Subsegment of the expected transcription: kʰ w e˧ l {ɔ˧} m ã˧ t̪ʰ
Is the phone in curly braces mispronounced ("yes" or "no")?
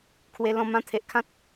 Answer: yes